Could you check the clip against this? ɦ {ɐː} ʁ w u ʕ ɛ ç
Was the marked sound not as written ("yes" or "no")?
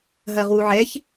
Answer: no